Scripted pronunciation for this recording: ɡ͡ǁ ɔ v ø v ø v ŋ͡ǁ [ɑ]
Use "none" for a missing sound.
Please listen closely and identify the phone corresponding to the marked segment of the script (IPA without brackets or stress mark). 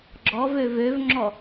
ɔ